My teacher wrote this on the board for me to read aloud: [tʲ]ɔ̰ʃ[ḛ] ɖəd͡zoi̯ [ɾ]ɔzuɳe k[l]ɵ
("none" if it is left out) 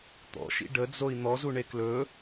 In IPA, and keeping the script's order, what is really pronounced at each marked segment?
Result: t̪, ḭ, n̪, l

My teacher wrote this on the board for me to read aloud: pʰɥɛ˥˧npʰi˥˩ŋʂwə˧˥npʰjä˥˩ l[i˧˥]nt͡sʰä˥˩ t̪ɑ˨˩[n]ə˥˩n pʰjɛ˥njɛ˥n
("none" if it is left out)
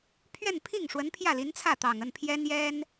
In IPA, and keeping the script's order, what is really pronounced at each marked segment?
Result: i˧˥, ŋ

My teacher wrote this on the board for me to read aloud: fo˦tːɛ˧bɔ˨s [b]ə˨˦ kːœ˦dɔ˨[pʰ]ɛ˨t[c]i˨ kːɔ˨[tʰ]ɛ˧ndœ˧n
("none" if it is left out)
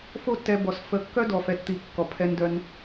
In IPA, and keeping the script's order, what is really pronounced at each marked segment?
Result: f, f, t̪, pʰ

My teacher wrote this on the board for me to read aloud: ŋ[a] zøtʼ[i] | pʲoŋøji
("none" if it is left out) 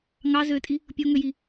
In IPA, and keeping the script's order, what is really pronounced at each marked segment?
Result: ɑ, i

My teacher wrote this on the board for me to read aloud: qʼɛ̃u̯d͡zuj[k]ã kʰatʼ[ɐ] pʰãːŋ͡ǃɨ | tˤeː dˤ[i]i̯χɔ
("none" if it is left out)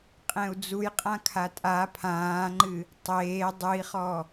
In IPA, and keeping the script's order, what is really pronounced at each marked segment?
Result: qʼ, a, ɨ

